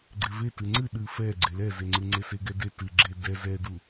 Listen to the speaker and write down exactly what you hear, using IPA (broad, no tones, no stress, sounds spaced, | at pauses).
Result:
ɡ͡ǀ e v e t ɨ ŋ͡ǀ ɨ ɗ ɨ f ɛ ɡ͡ǀ e l ɛ z e ŋ͡ǀ ɨ ŋ͡ǀ e s e ɡ ɛ d e t ɨ ɡ͡ǁ e d ɛ z ɛ d u